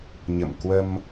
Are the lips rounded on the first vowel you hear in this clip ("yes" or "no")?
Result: no